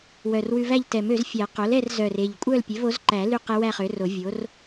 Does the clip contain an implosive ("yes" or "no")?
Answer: no